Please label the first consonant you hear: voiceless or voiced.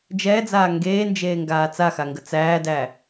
voiced